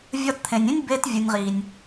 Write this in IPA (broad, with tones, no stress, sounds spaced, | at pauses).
vʲ ɒ˧ t t̪ʰ ẽ˨ nʲ ẽ˦ nʲ b e˧ t vʲ u˨ nʲ ʁ i˨ nʲ